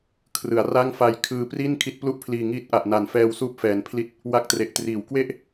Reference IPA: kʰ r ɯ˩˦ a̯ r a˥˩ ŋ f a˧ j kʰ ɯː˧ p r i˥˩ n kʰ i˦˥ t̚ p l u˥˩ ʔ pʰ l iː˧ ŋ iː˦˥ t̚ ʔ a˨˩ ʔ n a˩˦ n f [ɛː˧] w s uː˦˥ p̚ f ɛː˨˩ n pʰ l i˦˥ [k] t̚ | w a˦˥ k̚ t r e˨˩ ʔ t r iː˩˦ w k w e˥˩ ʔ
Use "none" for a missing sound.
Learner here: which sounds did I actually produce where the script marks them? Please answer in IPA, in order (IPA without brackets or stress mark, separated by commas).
ɛː˧, none